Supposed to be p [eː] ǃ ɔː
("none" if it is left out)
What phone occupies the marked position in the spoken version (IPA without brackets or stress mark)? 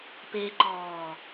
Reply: eː